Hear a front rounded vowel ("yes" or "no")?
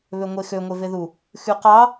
yes